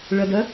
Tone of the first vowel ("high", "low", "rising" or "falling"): low